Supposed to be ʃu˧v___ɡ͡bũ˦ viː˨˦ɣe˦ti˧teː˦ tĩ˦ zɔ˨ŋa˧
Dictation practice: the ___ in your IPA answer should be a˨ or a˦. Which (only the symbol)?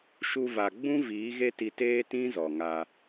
a˨